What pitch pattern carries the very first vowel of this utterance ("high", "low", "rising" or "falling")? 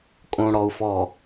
low